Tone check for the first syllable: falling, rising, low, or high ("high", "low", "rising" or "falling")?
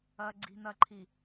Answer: low